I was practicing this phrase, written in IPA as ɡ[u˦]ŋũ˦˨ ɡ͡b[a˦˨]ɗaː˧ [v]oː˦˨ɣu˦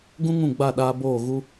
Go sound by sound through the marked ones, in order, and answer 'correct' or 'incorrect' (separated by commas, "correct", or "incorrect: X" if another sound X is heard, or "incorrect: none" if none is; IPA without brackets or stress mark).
incorrect: ũ˦, correct, incorrect: b